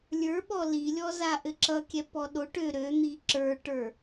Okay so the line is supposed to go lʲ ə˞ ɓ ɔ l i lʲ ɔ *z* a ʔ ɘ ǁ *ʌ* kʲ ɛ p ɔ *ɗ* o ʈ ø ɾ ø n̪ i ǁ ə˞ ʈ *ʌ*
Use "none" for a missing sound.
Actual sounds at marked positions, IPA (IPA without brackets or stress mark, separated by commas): z, ʌ, ɗ, ə˞